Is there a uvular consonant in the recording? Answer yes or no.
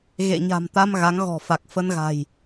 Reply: no